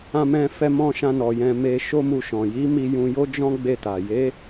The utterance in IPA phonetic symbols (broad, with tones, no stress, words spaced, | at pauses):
ã˧mɛ̃˧ fɛ˧mɔ̃˧ ʃã˧nɔ˨ jɛ̃˧ me˧ʃo˦mu˧ʃɔ̃˨ ji˨˦mi˧ jũ˧jo˦d͡ʒɔ̃˦ ɡ͡be˦˨ta˨ je˨˦